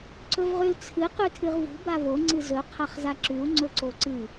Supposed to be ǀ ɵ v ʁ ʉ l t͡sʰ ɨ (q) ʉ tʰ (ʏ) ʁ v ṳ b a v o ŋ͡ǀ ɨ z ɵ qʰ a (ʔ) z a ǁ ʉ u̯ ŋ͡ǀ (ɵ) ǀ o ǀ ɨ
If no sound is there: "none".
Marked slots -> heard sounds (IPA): q, ɨ, χ, ɵ

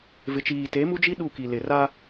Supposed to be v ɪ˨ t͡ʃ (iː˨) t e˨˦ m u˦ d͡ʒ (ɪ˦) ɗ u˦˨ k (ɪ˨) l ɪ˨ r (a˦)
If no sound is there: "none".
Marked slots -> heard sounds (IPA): iː˨, i˦, i˨, a˦

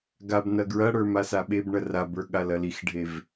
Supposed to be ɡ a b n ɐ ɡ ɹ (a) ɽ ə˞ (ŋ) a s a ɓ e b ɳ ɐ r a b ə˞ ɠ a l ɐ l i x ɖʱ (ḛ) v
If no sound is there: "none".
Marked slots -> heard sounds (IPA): ɐ, m, e

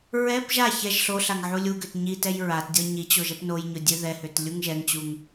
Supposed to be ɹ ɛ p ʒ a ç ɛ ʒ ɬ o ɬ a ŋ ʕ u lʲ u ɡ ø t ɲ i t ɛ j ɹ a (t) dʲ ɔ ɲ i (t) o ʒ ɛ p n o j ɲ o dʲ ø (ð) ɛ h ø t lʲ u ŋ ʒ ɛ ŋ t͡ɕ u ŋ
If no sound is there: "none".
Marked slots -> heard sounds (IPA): t, t͡ɕ, ð

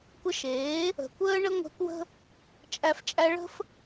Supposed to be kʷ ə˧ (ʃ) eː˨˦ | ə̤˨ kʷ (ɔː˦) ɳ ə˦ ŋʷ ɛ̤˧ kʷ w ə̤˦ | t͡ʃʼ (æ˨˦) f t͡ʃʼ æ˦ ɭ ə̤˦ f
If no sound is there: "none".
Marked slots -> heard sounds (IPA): ʃ, əː˦, æ˧

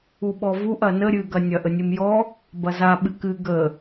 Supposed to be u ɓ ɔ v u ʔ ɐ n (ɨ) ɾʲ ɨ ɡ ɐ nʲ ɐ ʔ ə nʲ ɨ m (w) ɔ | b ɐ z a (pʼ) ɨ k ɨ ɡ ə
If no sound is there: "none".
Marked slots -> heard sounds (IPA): ə, j, ɓ

